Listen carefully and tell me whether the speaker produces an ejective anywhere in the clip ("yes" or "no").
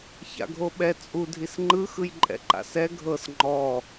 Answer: yes